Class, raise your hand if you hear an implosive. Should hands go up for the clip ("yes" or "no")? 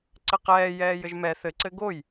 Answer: no